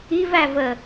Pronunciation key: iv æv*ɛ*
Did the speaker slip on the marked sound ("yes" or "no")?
yes